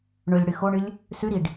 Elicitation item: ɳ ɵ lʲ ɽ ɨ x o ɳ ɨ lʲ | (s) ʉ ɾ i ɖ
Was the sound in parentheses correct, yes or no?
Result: yes